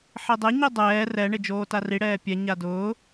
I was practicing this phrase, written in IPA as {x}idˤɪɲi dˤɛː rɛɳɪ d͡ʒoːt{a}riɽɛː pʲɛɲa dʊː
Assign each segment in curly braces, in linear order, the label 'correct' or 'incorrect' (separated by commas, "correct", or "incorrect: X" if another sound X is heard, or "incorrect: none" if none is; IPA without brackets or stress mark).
incorrect: ħ, correct